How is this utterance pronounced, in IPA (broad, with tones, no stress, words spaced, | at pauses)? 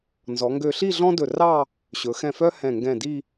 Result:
nzɔ˩˧ŋɡø˧ɬi˥˧ ɮɔ̃˥dɵ˧˩rɑ˥˧ | ɕɵ˩˧xɛ̃˧˩fœ˥ hɛ̃˧˩ ŋɡɛ̃˧˩di˥˧